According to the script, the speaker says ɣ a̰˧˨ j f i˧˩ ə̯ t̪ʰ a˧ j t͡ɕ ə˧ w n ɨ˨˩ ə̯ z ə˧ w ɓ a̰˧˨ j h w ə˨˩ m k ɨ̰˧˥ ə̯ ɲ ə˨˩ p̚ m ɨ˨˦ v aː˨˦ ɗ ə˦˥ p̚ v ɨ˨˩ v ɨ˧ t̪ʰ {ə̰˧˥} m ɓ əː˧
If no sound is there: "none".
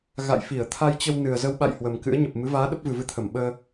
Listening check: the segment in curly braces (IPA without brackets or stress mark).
ə˧˩